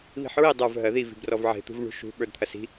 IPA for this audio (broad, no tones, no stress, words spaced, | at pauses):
βi̤ħɹi dˤə˞v ɦɜði vi̤brɔvʕe̤ t̪ṳvɳṳʃṳ ɓə˞dt̪ʰɐsi̤